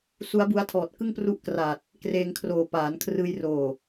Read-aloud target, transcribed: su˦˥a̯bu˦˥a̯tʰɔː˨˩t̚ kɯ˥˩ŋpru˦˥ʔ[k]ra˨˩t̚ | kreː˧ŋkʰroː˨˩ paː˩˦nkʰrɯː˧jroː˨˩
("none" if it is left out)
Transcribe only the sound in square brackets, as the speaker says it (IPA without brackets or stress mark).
k